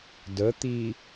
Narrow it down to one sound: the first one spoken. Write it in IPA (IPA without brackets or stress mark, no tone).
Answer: d